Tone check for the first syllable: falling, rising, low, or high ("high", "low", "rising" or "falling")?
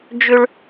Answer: high